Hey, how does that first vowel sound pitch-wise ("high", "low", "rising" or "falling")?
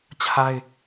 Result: high